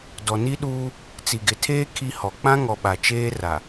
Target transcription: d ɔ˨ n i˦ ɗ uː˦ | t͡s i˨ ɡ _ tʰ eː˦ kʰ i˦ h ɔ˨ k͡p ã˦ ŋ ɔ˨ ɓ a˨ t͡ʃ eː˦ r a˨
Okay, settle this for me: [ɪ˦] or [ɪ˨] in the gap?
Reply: ɪ˨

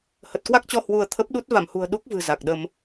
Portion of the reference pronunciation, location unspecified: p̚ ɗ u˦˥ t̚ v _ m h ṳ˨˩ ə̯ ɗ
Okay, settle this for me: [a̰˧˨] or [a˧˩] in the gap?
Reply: a˧˩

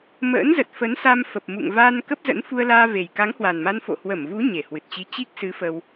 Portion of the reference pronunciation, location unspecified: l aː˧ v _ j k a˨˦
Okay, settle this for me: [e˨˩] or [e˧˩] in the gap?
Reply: e˨˩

